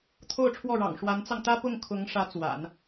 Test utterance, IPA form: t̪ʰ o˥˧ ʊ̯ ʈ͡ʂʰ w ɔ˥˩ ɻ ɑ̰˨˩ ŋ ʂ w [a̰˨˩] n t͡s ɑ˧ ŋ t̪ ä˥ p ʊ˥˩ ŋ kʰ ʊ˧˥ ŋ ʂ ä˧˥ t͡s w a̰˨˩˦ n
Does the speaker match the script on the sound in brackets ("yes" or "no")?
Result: no